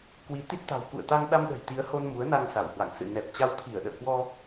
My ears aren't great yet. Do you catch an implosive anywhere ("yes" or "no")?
yes